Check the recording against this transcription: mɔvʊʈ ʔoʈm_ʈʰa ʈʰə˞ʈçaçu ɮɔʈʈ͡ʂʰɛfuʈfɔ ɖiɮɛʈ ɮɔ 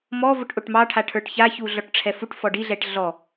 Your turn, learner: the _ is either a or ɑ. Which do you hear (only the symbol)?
ɑ